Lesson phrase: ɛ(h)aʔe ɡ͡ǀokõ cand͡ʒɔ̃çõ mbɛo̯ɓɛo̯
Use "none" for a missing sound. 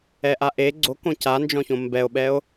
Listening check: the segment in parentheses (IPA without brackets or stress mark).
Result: ʔ